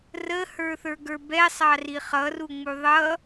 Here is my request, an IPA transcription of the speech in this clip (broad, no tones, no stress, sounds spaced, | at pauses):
r ə h ə˞ θ ə˞ ɡ ə˞ b ɛ sˤ ɑ r i χ ʌ r u ŋ͡m u ðˤ ʌ